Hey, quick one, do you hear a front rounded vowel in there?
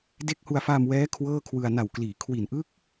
no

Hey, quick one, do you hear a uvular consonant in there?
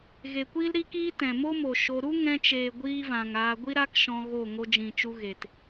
no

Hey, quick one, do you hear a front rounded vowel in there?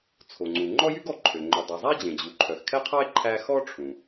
yes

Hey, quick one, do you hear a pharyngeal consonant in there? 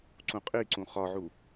yes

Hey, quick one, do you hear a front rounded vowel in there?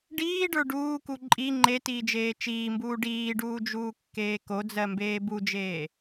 no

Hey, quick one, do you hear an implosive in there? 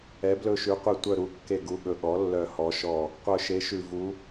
yes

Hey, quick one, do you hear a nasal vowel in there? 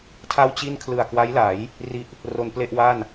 no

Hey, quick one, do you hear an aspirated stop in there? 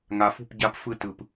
no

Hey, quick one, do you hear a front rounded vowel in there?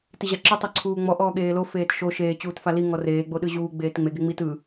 no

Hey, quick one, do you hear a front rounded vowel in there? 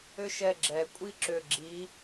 yes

